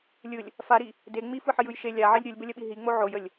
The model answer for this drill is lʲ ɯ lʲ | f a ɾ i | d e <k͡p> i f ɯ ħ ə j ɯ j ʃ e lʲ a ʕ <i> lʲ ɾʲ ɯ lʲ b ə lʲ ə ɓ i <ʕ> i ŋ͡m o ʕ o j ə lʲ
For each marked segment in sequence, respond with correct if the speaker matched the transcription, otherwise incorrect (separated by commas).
incorrect, correct, incorrect